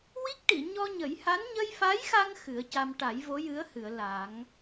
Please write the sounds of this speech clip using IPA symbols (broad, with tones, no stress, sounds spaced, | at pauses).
w i˦˥ k̚ ʈ i˨˩˨ ɲ ɔ˧ ɲ ə˨˩˦ j h a˧˥ n ɲ ə˧ j f a˧˥ j x a˧ ŋ x ɨ˨˩˦ ə̯ c a˧ m ʈ a˨˩˦ j v o˧˥ j ɨ˧˥ ə̯ h ɨ˨˩˨ ə̯ l a˨˩˦ ŋ